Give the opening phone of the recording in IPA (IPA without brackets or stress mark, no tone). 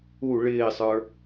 u